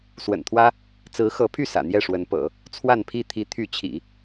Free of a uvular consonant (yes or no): yes